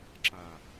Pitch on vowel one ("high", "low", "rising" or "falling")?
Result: low